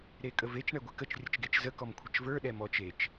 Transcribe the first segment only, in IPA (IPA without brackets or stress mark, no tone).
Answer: ɾ